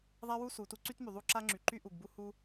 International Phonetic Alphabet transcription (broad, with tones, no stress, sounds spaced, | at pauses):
ðˤ a˥ w u˥ s u˩ t u˥ ǀ y˥ t m y˩ ðˤ u˥ ǁ a˥ ŋ͡ǁ y˩ ǃ y˥ ʔ u˩ ɡ b u˥ h u˥